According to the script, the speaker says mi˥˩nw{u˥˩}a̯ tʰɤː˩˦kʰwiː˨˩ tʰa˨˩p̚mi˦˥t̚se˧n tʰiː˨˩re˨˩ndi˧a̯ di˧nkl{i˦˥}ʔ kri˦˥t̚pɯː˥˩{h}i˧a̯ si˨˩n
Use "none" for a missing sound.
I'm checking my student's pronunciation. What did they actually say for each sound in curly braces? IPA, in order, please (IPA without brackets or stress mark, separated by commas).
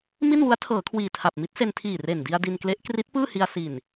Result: u˦˥, e˦˥, h